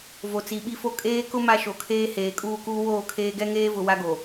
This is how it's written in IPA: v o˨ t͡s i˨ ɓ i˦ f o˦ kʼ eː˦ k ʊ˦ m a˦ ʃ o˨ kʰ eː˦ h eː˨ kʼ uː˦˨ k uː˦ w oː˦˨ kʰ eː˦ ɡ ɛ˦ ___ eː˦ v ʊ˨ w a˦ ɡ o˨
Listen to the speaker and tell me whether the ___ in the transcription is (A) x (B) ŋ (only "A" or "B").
B